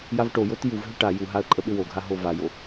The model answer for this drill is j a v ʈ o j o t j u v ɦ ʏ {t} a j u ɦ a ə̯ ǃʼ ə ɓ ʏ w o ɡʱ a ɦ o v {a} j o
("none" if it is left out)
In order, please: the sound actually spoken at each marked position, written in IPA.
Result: ʈ, a

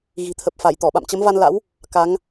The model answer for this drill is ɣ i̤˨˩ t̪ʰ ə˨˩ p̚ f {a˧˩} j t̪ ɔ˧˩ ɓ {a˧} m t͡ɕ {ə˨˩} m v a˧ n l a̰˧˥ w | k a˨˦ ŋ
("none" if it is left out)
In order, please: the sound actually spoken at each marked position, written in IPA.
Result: a˧˩, a̰˧˨, ə˨˦

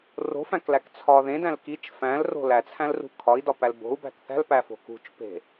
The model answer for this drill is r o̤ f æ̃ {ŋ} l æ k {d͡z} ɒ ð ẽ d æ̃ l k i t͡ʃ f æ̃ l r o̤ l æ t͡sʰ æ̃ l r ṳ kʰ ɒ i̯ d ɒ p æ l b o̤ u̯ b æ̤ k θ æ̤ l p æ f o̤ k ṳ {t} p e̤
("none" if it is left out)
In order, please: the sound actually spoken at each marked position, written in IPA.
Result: k, t͡sʰ, t͡ʃ

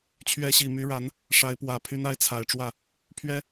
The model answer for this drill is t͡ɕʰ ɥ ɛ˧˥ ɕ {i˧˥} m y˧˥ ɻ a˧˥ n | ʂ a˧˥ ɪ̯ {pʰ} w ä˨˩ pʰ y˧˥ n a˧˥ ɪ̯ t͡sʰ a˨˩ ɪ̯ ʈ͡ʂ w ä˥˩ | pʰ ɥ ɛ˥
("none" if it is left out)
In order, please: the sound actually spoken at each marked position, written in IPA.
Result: i˨˩, p

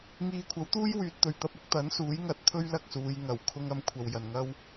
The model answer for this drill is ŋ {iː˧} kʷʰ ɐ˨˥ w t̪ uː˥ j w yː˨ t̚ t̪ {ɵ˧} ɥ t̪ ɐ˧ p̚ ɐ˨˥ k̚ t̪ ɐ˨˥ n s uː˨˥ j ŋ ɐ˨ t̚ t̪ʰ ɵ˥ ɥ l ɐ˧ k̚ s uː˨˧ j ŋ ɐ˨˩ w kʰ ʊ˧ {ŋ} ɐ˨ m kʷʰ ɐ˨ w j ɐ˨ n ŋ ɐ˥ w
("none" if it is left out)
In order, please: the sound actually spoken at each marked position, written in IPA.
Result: iː˧, ɵ˧, ŋ

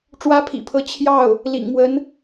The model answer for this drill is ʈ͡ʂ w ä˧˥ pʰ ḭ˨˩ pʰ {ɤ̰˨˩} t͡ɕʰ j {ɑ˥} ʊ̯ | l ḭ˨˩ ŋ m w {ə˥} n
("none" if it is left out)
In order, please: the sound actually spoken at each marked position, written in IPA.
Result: ɤ˧˥, ɑ˥˩, ə˧˥

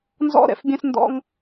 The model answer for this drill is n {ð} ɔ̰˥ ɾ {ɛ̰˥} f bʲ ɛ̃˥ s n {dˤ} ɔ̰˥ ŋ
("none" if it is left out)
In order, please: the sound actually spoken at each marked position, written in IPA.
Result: z, ɛ̰˩, d

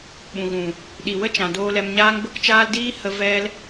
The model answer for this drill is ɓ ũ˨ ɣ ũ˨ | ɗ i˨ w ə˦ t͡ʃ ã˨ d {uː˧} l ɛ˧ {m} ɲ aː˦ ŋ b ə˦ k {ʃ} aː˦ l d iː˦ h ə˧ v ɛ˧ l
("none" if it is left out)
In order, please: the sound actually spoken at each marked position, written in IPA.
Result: oː˧, m, t͡ʃ

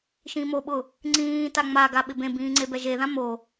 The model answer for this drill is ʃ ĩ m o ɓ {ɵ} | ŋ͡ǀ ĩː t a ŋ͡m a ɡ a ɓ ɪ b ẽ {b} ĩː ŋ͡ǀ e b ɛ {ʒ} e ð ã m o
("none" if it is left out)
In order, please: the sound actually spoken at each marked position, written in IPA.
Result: ʊ, b, ʒ

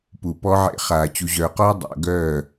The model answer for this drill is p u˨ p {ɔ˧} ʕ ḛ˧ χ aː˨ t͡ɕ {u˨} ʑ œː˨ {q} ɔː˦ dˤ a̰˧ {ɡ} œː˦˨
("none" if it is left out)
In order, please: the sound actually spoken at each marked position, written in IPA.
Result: ɔ˧, u˨, q, ɡ

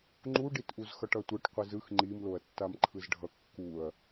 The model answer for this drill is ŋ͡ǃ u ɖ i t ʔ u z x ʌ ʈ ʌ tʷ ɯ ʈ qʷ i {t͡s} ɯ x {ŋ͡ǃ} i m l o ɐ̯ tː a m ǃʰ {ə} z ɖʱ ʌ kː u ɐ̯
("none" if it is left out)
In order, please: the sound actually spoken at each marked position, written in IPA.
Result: z, ŋ͡ǃ, ɯ

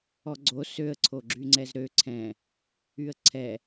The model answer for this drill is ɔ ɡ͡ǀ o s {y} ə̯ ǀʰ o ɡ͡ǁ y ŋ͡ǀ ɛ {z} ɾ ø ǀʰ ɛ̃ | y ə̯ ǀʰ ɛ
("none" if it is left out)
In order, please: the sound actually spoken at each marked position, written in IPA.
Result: ø, z

